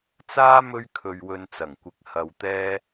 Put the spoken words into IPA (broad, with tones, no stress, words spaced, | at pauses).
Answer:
t͡saː˥ mɵ˥ɥkʰɵ˧ɥwɵ˧n t͡sɐ˨˩ŋkʷɪ˨˥k̚ hɐ˧wt̪ɛː˥